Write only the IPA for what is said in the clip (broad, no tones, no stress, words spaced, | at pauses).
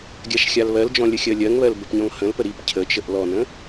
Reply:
ɡʲaʃxʲalβɜld͡ʒɔ̃ lʲəxʲɜlʲɜŋβɜl bəpɲɔ̃ŋhə̃lpə ɾip cʰət͡ʃəʔ lɔnə̃